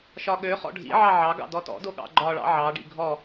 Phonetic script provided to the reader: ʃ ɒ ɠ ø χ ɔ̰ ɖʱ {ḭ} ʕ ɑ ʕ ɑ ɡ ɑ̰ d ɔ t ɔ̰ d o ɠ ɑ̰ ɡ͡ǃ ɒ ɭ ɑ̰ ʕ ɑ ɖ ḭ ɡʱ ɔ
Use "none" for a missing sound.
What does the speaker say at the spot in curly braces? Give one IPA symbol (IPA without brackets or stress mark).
ḭ